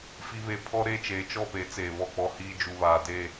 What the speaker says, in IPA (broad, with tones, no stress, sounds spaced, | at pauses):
f i˦ β e˦˨ pʰ ɔ˦ ɾ e˦˨ t͡ʃ eː˨ t͡ʃ ɔ˦˨ p e˨˦ t͡s eː˨ β ɔ˦˨ k͡p ɔ˦ h iː˦ d͡ʒ u˨ β aː˨ d eː˦˨